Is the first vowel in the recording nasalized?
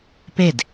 no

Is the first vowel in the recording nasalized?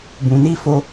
yes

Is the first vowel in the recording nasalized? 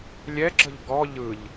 no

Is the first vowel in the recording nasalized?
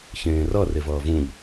yes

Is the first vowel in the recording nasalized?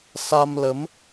no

